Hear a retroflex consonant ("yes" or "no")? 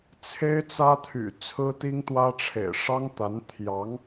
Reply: yes